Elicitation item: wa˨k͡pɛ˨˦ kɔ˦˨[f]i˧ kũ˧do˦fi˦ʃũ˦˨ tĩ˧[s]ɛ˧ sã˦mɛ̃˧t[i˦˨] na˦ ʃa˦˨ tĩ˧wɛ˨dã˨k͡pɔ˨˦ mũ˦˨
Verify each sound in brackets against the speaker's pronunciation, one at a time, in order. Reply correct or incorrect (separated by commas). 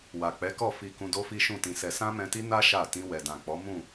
correct, correct, incorrect